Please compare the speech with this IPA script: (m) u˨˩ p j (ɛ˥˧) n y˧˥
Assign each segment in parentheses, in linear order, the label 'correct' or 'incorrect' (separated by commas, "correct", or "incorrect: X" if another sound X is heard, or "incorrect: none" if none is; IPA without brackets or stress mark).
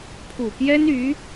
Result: incorrect: pʰ, incorrect: ɛ˥